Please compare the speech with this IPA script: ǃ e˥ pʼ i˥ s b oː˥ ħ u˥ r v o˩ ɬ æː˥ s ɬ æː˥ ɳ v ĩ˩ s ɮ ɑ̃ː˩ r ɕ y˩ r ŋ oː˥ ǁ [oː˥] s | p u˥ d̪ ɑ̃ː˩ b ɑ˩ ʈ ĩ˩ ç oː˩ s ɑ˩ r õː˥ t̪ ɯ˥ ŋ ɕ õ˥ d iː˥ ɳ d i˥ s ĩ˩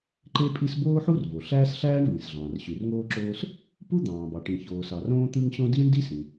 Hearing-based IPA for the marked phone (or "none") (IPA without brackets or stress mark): oː˥